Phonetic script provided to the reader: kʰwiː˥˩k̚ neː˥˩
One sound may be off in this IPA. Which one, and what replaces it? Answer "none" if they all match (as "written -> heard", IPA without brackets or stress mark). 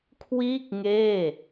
n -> ŋ